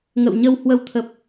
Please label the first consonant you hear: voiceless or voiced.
voiced